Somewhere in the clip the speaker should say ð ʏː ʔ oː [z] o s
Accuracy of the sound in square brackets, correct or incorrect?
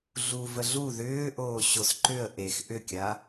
incorrect